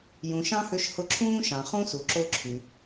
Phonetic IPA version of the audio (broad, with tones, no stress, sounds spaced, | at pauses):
j ũ˨ ʃ ɑ̃˥ h ø˦ ʃ h ʊ˦ ǁʰ ũː˥ ʃ ɑ̃˨ χ ũ˥ s u˨ ǁ o˦ ǁʰ y˨